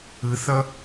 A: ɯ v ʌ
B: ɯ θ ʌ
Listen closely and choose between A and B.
B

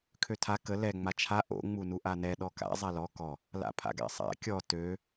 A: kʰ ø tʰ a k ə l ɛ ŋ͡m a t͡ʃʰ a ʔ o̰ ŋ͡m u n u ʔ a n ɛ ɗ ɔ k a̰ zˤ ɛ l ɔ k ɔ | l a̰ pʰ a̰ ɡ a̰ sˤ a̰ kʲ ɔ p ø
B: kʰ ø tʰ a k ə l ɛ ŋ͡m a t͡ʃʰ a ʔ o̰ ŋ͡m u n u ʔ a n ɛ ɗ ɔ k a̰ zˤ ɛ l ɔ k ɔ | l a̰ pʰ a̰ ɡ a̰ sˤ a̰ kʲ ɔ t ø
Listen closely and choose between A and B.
B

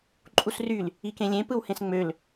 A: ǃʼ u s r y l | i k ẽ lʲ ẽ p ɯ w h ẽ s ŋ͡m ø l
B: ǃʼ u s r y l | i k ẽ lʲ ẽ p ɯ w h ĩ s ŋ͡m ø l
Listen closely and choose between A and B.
A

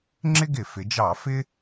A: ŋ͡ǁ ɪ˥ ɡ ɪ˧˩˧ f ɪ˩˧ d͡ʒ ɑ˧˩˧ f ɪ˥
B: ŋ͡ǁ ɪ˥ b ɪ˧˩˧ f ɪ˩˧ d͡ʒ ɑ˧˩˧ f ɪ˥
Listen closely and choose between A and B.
A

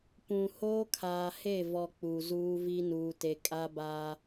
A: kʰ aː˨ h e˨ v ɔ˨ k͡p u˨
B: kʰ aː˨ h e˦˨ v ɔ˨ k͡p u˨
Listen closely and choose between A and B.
B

